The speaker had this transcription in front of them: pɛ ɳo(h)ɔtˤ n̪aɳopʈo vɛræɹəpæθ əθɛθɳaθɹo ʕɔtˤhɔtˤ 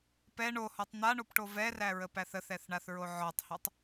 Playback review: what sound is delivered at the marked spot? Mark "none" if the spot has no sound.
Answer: h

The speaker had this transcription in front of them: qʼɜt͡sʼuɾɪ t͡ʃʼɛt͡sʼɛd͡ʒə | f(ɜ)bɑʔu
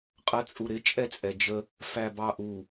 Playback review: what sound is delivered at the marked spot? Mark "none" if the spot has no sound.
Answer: æ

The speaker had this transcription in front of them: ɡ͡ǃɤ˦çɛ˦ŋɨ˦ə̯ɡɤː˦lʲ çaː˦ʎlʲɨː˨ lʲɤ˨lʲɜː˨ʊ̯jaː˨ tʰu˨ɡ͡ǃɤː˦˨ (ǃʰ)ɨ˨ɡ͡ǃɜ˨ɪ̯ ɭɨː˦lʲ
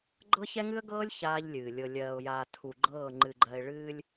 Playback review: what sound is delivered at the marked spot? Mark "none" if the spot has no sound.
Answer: ŋ͡ǃ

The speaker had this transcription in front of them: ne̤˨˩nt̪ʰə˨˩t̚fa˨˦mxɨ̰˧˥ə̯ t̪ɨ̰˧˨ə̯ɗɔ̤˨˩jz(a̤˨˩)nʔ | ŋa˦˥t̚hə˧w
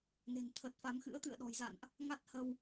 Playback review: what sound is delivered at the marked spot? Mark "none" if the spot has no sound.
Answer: a̰˧˨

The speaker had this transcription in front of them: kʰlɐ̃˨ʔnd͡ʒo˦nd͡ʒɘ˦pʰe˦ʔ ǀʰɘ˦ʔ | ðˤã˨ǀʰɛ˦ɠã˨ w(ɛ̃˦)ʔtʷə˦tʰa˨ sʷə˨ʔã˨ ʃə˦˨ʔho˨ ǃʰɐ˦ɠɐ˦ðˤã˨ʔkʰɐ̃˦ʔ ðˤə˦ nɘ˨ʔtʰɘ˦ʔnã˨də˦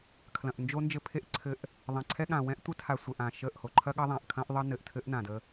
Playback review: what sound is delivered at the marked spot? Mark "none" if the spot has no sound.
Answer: ɛ̃˦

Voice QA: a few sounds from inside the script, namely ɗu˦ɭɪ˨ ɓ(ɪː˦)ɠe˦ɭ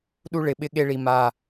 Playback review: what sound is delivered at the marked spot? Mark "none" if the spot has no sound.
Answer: ɪ˦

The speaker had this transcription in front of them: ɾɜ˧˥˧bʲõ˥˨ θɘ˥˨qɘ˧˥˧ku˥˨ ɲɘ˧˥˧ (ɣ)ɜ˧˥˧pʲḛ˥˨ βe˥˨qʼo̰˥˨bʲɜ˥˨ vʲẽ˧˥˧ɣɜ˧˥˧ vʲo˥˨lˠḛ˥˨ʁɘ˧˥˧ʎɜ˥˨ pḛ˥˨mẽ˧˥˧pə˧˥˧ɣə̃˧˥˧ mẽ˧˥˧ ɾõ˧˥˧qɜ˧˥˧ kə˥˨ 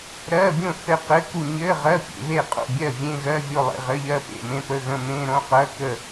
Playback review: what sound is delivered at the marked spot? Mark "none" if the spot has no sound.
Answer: ʁ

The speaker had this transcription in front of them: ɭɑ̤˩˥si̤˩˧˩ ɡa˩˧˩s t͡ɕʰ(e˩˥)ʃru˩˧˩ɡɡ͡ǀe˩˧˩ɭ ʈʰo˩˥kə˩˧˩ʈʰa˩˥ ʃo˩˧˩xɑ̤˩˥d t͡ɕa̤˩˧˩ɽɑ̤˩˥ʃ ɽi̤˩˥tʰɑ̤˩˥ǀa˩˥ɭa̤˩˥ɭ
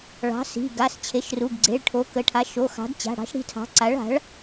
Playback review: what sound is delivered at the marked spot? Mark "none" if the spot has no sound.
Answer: e˩˥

